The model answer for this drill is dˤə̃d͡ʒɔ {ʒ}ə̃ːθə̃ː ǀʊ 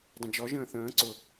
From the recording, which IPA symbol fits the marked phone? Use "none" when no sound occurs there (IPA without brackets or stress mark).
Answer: ʒ